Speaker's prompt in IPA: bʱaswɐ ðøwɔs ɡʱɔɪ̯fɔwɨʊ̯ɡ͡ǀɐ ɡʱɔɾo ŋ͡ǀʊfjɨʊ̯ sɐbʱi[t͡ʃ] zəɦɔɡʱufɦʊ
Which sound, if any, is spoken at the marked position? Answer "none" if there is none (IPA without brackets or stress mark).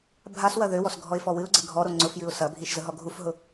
ʃ